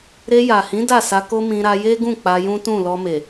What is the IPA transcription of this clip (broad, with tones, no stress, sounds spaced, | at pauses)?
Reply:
ɾ e˧ j a˨ h ĩ˨˦ d a˦˨ s a˧ k o˦ m ĩ˧ ɾ a˧ j e˦ ɡ ũ˦˨ k͡p a˧ j ũ˦ t ũ˦˨ l ɔ˧ m e˨